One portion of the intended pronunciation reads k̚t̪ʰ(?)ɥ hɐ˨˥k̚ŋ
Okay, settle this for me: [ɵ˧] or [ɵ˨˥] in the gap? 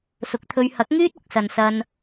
ɵ˧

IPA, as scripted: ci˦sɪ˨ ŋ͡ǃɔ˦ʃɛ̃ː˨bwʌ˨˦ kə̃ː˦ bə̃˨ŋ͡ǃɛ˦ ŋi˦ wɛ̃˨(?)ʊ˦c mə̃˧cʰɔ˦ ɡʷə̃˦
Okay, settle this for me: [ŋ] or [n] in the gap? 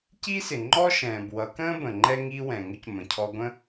ŋ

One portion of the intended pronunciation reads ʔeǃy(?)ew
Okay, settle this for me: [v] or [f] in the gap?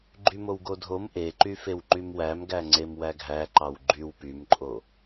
f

